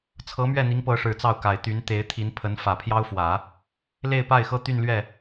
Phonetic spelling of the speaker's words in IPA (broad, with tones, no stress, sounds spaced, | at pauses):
t͡sʰ ɤ˧˥ m ɥ ɛ˥˩ n̪ i˧˥ ŋ p ɤ˧˥ ʂ ɻ̩˨˩ t͡s ɑ˥˩ ʊ̯ k a˨˩ ɪ̯ t̪ y˧˥ n t̪ e˧˥ ɪ̯ t̪ʰ i˧˥ n pʰ ə˧˥ n f ä˨˩ pʰ j ɑ˥ ʊ̯ f w ä˨˩˦ | l e˥˧ ɪ̯ p a˥˩ ɪ̯ x ɤ˥ t̪ y˥˧ n l ɥ ɛ˥˩